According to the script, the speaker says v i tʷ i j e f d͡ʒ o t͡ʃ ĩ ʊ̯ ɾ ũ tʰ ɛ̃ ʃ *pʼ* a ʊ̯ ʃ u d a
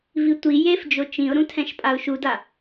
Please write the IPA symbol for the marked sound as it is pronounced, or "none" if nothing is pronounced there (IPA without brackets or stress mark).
pʼ